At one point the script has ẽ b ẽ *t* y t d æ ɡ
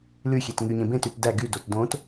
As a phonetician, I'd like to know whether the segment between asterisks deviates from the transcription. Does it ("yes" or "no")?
no